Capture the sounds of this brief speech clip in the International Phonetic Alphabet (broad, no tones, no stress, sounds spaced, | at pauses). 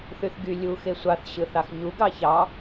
θ y θ ɡ y lʲ u x e sʷ ɑ θ ɕ ɯ θ ɑ x ɲ u ɡ ɑ ç ɑ